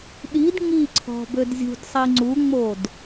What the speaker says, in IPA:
ɗ i d ŋ i ǀʰ ɔ̤ b ø d zʲ ṳ d sˤ i ŋ͡ǀ u ŋ͡m o d

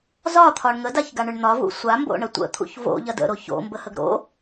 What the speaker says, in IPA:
z ɒ t̪ʰ ɒ ɳ ŋ ə d a ç ɡ a ɳ ʏ ɳ n̪ ɒ v ṵ sʷ a m b o̰ ɳ ə tʷ ə̰ t̪ʰ ṵ ç v o̰ ʎ ɐ d ə̰ ɾ o ç o̰ m b ə h ə ɡ ɾ o̰

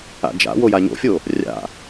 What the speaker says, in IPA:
a̰ d͡ʒ a̰ w o j a ɲ o̰ fʲ o | rʲ a̰

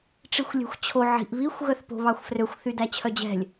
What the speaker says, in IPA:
ʈ͡ʂ i xʷ lʲ ɛ̤ xʷ t͡ɕʰ o ʕ i̤ ʔ β i xʷ ɣ œ θ p o̤ β ɑ xʷ f r ø xʷ θ y d æ t͡ɕʰ œ d͡ʑ ɛ̤ lʲ

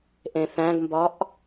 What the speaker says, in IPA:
ʔ ẽ θ æ̃ ɡ m b ɒ ʔ

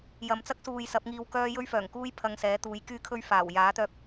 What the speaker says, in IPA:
j ɐ˨ m t͡s ɐ˥ k̚ s uː˨ j s ɐ˨˥ p̚ ŋ iː˧ w k œː˥ j ɵ˥ ɥ f œː˨˩ ŋ k uː˥ j pʰ ɐ˧ ŋ s ɛː˨˥ t̪ uː˨˧ j k yː˥ kʰ ɵ˥ ɥ f aː˨˩ w j aː˨˥ t̪ œː˧ k̚

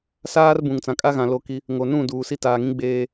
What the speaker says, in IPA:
s aː˦ r b ũ˨ ŋ t͡s ã˨ kʼ a˦ ɣ ã˨ l o˦ k i˦ | ŋ o˨ n ũ˦˨ d uː˨ s i˦ t aː˨ ŋ ĩ˦ ɡ͡b eː˦

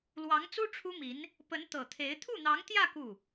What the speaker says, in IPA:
l w ɑ˧˥ ŋ t͡s u˥ ʈ͡ʂʰ u˥ m i˧˥ n | p ə˧˥ n t̪ ɤ˨˩ t̪ʰ e˧˥ ɪ̯ t̪ʰ u˥˩ n̪ ɑ˧˥ ŋ t̪ j ä˥˧ k u˥˩

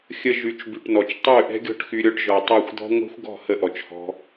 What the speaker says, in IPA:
xʲ ə˧ ʒ y˨˦ t͡ʃ b y˨ ʈ n ɔ˨ t͡ʃ tˤ y˦˨ ʔ ɛ̤˦ ɡʲ ɔ̤˦˨ ʈ x y˧ ɾʲ ɔ˧ ʈ ʒ ɔ˨ tˤ ɛ˦˨ xʷ d̪ ɔ̤˦ ŋʷ ɛ̤˦ xʷ ɡ ɔ̤˦˨ h ə˦ ʔ ɔ˨ t͡ʃ h ɔ̤˦

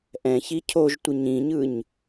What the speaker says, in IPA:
ʔ ɛ̃ ç i cʰ o ʒ tʷ ə ɲ ĩ ɲ ɯ ɲ

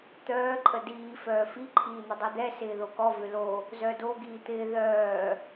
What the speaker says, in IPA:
t̪ œː ǃʼ ə d iː f œː f i ǃʰ iː n̪ ə dˤ y d̪ ɛ s ɪː ð o k ɔ v ʏ l o | z œ d o ɡ iː t̪ ɪː ð œː

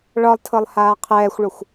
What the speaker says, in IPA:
ɭ ɒ lˠ tʰ ɤ lˠ h aː qʰ ɛː xʷ ɭ o xʷ

